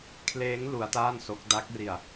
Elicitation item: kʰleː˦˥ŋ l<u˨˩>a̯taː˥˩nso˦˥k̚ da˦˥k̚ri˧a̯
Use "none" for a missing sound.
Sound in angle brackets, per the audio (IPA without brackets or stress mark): u˦˥